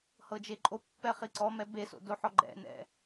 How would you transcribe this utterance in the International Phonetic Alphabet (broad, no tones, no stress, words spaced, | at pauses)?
hɤd͡ʒeǃʼopːɛ χiǀɔmɛ beso̰ doħɔɡ͡ǃɛ̰nɛ̰